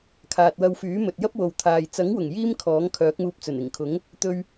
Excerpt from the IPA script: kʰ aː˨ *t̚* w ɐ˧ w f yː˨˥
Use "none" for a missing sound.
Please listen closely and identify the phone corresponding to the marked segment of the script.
t̚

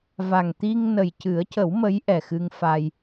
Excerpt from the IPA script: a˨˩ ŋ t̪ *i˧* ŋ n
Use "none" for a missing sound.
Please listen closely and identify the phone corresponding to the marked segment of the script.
i˧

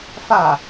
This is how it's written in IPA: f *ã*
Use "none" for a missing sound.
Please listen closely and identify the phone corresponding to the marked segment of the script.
a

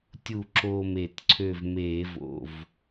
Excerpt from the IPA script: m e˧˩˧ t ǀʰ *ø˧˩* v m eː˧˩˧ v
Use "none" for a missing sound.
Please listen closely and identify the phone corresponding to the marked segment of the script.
ø˧˩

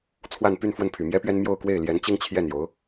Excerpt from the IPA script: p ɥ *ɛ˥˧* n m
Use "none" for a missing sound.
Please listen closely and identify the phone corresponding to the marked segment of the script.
ɛ˥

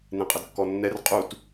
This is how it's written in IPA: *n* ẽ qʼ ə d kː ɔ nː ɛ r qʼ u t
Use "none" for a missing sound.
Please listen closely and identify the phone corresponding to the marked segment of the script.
n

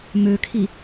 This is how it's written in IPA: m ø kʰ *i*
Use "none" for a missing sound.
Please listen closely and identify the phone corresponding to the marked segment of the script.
i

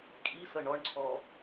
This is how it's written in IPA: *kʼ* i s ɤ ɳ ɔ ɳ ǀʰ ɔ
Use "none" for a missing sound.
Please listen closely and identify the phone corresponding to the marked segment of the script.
kʼ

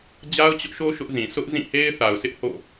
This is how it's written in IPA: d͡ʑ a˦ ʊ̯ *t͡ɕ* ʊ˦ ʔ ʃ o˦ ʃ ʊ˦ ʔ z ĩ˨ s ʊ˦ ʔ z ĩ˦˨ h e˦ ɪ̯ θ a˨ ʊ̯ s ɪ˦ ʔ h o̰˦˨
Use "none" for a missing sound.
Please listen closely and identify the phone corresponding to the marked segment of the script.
t͡ɕ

